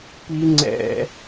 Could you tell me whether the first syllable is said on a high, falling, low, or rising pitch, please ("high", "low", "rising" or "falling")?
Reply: high